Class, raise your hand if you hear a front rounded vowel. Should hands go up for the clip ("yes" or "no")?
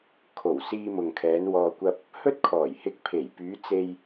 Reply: yes